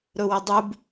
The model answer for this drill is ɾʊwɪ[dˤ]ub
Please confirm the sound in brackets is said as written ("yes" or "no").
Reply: yes